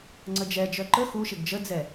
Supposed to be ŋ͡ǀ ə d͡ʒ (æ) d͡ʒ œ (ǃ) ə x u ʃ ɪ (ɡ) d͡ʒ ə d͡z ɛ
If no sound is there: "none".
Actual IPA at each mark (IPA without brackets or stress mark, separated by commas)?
ɛ, ǃ, ɡ